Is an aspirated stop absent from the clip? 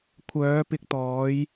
no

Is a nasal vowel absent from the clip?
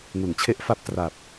yes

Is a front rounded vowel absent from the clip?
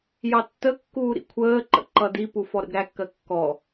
yes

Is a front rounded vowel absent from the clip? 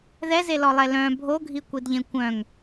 no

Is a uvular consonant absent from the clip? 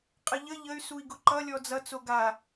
no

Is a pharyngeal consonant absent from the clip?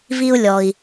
yes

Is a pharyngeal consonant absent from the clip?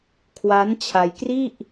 yes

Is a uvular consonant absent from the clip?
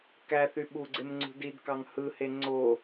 yes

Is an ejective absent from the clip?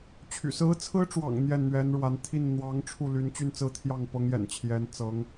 yes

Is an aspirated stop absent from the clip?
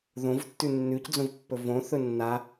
yes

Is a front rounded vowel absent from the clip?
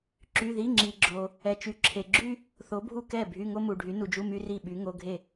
no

